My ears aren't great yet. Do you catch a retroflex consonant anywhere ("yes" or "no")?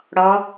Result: yes